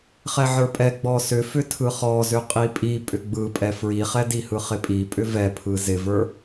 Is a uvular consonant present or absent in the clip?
present